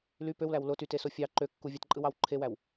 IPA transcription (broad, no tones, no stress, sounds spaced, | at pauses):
l y p ø w l æ w l o t y t e s o fʲ ɑ ǃ ø kː u vʲ ɑ t ǃʼ ɯ w ɑ w ǃʰ e w æ w